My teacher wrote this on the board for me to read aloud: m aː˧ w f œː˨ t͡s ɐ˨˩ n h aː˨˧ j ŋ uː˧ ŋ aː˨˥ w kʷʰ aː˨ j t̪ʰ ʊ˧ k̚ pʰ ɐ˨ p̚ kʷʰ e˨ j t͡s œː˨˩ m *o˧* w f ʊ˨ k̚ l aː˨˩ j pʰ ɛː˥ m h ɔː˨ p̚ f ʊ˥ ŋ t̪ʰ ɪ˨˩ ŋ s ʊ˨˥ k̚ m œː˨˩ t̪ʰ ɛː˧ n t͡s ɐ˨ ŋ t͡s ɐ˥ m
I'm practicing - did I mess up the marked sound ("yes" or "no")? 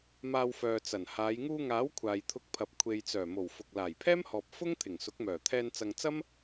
yes